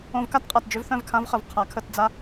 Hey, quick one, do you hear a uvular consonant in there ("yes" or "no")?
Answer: yes